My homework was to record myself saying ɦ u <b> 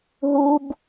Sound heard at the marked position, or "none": b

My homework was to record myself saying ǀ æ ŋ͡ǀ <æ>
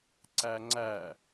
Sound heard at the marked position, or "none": æ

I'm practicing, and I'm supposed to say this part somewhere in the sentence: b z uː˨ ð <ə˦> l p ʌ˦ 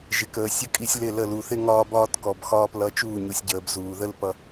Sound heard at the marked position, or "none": ə˦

